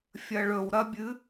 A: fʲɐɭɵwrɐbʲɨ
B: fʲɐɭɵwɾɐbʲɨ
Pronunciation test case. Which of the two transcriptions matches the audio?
B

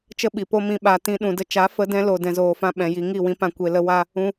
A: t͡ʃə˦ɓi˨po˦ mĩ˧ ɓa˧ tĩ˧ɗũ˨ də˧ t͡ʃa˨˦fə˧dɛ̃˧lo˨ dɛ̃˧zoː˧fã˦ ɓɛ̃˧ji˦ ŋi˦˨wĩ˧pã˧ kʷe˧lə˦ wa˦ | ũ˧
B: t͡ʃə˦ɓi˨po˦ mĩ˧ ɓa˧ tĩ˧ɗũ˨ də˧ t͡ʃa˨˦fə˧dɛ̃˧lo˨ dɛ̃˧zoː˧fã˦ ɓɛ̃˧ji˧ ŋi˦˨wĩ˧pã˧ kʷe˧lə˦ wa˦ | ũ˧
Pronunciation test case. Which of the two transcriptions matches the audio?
B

